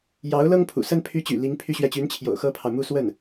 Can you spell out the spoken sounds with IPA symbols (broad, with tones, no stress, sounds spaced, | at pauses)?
j ɑ˧˥ ʊ̯ l ɤ˥ ŋ pʰ ṵ˨˩ s ə˥ n pʰ y˧˥ t͡ɕ y̰˨˩ l i˧˥ ŋ pʰ y˥ ɕ ɥ ɛ˥˩ t͡ɕ y˧˥ n t͡ɕʰ j o̰˨˩ ʊ̯ x ɤ˥ pʰ ɑ˨ ʊ̯ m u˥˧ s w ə˥˩ n